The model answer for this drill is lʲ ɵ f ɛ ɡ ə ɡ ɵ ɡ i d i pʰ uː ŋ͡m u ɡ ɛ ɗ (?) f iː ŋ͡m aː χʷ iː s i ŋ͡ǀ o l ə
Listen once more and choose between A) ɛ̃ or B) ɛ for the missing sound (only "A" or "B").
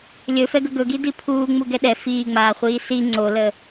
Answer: B